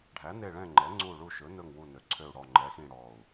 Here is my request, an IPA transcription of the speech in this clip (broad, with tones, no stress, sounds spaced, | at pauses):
ɖʱ æ˨˥ n e˦˨ ɭ ɛ̃˦˨ ŋ͡ǃ ɛ˨˥ ŋ͡ǀ u˦˨ ɭ u˦˨ ʃ ɵ˨˥ n ɵ˦˨ ŋ w u˦˨ n ø˨˥ ǀʰ ø˦˨ u̯ ɽ ɔ˦˨ ŋ͡ǃ ɛ˨˥ x ĩ˦˨ ɽ ɔ˦˨ u̯